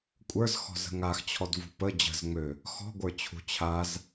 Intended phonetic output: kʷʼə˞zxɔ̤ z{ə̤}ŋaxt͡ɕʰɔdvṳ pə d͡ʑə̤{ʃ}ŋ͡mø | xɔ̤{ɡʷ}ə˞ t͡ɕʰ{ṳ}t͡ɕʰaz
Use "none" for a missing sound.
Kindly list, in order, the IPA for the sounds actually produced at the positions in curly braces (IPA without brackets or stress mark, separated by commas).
ə̤, z, ɡʷ, ṳ